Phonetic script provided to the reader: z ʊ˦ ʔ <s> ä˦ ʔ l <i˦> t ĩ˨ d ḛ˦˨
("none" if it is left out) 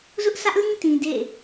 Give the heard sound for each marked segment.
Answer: s, ĩ˦

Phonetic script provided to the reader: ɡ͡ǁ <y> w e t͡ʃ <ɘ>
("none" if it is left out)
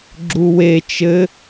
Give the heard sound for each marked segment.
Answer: u, ɘ

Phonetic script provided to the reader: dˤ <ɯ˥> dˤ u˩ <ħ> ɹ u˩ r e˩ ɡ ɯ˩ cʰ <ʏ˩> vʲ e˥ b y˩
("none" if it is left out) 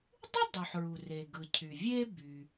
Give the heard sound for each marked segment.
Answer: ɯ˥, ħ, y˩

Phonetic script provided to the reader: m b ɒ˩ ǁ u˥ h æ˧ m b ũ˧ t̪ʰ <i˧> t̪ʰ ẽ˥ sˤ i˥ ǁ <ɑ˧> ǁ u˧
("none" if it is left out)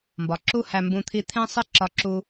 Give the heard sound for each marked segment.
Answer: i˧, ɒ˧

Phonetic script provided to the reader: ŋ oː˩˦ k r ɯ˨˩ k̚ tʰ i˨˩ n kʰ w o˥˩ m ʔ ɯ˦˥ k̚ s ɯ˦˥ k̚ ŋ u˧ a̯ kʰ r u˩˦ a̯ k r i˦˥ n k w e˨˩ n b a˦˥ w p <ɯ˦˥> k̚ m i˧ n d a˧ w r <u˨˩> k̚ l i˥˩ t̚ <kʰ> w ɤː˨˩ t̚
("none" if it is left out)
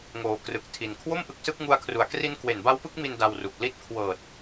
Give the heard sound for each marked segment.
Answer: ɯ˦˥, u˨˩, kʰ

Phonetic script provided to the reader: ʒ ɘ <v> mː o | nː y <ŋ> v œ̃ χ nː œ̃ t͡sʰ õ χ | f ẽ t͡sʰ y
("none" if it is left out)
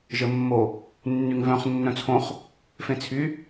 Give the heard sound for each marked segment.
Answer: none, ŋ

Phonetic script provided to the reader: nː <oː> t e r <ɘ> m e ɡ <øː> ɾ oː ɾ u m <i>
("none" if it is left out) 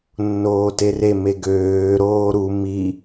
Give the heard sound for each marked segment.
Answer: oː, e, øː, i

